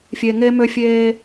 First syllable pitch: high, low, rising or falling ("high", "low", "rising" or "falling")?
low